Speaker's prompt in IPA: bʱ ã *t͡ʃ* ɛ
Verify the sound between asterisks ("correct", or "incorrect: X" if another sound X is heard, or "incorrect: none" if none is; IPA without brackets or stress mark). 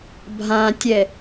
incorrect: tʲ